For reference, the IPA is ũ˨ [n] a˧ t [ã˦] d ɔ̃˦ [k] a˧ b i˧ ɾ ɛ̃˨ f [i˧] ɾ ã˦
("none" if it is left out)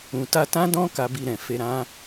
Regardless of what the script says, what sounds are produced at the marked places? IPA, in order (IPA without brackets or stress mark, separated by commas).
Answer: t, ã˦, k, e˧